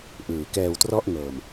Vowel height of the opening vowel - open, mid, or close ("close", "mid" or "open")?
close